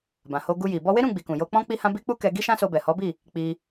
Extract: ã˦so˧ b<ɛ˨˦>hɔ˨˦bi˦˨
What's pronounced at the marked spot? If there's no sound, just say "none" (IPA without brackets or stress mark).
ɛ˨